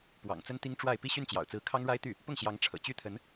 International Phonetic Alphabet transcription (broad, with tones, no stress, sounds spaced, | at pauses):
p w ɑ̰˨˩ ŋ t͡s ə˥ n t̪ i˥ ŋ ʈ͡ʂ w a˥˧ ɪ̯ p i˥˧ ɕ y˥˩ n t͡ɕ j ɑ̰˨˩ ʊ̯ t͡s ɹ̩˧˥ kʰ ɑ˥ ŋ ɻ a˥ ɪ̯ t̪ y˥˩ | p ʊ˥˩ ŋ ɕ j ɑ˧˥ ŋ ʈ͡ʂʰ ɤ̰˨˩ t͡ɕ y˥˩ t̪ʰ ə˧˥ n